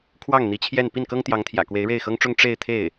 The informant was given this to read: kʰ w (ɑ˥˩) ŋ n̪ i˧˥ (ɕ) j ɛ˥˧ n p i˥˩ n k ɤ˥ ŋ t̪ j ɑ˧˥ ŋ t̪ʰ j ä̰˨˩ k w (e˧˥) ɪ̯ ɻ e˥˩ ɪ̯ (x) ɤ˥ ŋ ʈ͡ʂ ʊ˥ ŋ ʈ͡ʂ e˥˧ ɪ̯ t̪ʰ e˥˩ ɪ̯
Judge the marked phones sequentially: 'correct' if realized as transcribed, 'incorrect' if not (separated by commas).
correct, incorrect, correct, correct